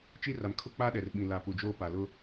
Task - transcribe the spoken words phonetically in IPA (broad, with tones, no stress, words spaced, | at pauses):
t͡ʃi˦ra˨m kʰʊ˦k͡pa˦ ɗɛ˨rɓĩ˨ la˨ pu˨d͡ʒoː˦pa˨ lʊ˦